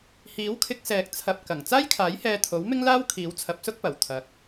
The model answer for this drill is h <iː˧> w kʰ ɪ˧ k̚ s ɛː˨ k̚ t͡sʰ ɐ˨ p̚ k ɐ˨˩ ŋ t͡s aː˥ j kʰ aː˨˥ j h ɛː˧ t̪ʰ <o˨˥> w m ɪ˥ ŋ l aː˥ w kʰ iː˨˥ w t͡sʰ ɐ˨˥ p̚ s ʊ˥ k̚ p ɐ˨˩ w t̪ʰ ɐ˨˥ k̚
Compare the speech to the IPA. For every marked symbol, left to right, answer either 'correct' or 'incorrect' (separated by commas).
incorrect, correct